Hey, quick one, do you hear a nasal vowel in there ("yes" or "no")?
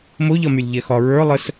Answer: no